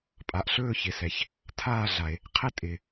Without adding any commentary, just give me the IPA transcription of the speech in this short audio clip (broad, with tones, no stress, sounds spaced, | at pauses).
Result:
pʼ a˩ ʔ ɬ ɵː˥˨ ç ɪ˩ s ɛ˩ ç | tʰ aː˥˨ ɮ a˩ e̯ | qʰ ɪ˥˨ tʼ ɪ˩